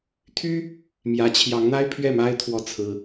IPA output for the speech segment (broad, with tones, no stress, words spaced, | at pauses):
t̪ʰy˥ | mjä˧˥t͡ɕʰjɑ˧˥ŋn̪a˥ɪ̯ pʰɥɛ˥˩ma˥ɪ̯ t̪ʰwɔ˥˩t͡sʰɹ̩˥